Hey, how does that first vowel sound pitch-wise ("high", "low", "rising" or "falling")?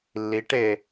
rising